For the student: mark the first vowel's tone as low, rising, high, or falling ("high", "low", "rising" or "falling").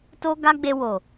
high